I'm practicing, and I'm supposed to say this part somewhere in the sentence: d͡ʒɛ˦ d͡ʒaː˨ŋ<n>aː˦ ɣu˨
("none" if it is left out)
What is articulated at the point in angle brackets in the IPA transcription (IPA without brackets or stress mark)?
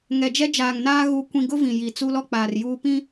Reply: n